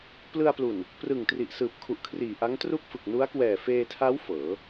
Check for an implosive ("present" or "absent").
absent